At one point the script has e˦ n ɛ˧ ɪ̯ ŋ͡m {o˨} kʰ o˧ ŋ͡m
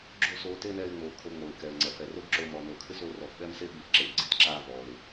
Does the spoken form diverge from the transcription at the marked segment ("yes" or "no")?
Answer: no